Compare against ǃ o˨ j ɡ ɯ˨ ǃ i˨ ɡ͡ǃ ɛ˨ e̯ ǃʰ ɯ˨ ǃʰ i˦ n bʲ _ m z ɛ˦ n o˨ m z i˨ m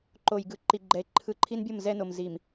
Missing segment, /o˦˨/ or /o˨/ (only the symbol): o˦˨